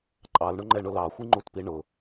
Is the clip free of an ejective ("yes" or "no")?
no